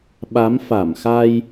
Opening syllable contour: rising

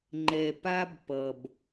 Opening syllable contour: low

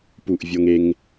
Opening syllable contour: falling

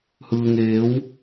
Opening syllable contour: low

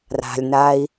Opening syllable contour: low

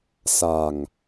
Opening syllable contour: low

